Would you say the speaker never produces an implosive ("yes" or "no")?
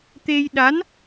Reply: no